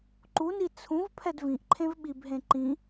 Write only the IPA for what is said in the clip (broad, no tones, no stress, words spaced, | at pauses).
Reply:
ǃuni t͡sʰũv pʰɛdvĩʔǃʰẽv ɓibɦẽ ǃĩ